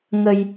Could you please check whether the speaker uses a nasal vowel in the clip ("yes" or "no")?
no